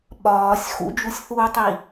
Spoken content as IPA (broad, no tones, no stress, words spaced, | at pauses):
ɓɒːsʲ xṵd͡ʒusʲθuːtˤi